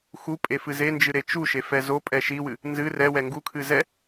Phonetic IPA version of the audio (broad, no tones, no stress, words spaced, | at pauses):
xupʼefɨ zend͡ʒɨɾe t͡ʃuʃefɛ zopʼɛ ʃiwɨ | nzɨ rɛwɛ ŋɡukʰɨ zɛ